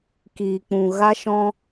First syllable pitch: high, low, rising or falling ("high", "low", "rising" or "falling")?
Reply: low